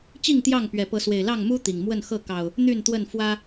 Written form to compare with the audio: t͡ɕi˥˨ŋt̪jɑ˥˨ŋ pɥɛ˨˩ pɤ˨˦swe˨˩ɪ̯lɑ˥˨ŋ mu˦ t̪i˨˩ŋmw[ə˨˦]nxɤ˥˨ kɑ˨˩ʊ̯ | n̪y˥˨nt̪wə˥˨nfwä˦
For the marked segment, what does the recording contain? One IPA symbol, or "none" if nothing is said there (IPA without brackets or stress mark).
ə˥˨